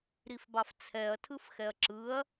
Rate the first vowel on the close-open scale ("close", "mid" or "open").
close